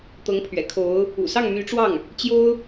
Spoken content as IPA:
t̪ɤ˧˥ŋpʰɥɛ̰˨˩kʰo˧˥ʊ̯ | ṵ˨˩ sɑ˥˩ŋmy˧˥ʈ͡ʂwɑ˥˩ŋ | t͡ɕjo˥ʊ̯

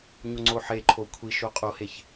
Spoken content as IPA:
ɲoŋ͡ǀoħeǃʰo kʷʰiʃo qʼoheç

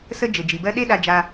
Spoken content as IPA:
sə˦ d͡ʒɘ˩d͡ʒi˩bɜ˦ ɗe˦ɗa˨ d͡ʒa˨

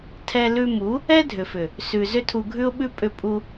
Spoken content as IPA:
tʰɛ˧lʉ˧mu˨˦ | ɛ˦dʱʏ˨fʏ˨ | sʉ˨ zʏ˦tʰu˧ɡʱʉ˦ʊ̯ɓʉ˦ pʼʏ˧pʼu˧

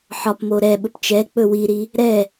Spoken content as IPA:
ħɒpmo ɾɛɓɵp t͡ʃɛ k͡pɵwiɾi | ɾɛ

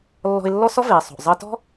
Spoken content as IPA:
lːɔ̤˧ɪ̯lːɔ˥ sɔ˥veː˩ sˤo̤˩ʔ zˤəː˧tɔ̤˥

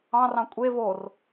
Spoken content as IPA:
ɑ̃rɑ̃ kʷʼe vor

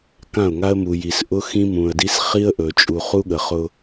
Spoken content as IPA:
kã˦˨ʊ̯ŋa˦ə̯mu˨ ji˨s ʔʊ˦xĩ˦mũ˨ə̯di˦s χi˦ə̯ʔɵ˨ t͡ʃʼu˨ χu˦ɠə˨χʊ˦

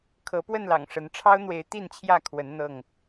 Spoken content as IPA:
kʰɤ˨˦pwə˥˨nlɑ̰˨˩ŋ ʂə˨˦n ʈ͡ʂʰɑ˦ʊ̯n̪we˨˦ɪ̯ t̪i˥˨nt͡ɕʰjä˥˨kʰwə˨˦n n̪ɤ˥˨ŋ

